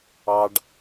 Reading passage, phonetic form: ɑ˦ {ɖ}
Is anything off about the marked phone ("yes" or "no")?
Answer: no